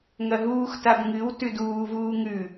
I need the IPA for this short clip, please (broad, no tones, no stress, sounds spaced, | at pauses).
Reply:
ŋ ɐ ɦ uː x t a b ŋ ɨ w t ʉ d uː v uː ŋ ʉ